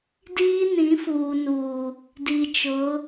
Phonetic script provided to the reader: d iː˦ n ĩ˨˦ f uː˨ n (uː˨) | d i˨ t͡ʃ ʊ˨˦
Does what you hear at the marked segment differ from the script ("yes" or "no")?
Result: no